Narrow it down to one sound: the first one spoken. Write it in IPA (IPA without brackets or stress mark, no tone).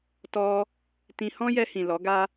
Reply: t